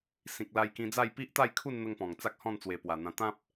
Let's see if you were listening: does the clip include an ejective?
no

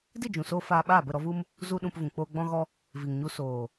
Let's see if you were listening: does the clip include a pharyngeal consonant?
no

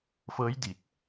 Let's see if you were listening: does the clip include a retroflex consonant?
no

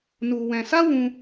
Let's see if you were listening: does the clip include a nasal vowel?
yes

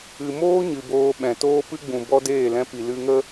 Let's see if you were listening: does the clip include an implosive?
yes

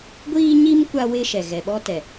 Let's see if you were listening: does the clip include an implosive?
yes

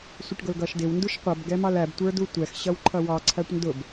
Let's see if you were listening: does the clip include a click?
yes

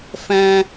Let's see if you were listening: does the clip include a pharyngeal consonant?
no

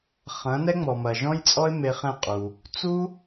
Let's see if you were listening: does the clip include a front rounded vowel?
no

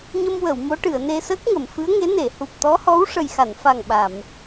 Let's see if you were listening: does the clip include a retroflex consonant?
yes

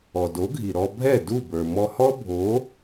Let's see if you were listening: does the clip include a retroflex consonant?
no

